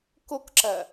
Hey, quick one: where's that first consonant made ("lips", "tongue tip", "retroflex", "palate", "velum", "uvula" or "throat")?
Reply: velum